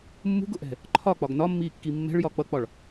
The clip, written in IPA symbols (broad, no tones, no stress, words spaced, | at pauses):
mːṳɡʊʔɛ̤ | ǃʰɒk͡pɒɡ nɒmːiːkːi mːɛ̤ɭjɒ k͡pʌk͡pɒɭ